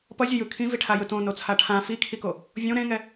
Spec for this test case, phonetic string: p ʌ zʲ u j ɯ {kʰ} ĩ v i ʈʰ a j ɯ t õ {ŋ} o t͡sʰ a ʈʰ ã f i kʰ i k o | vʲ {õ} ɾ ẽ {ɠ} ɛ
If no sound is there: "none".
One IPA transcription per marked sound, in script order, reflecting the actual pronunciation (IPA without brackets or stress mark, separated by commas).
kʰ, n, õ, ŋ